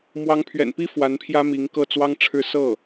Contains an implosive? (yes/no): no